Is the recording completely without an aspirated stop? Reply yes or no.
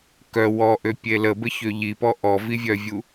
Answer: yes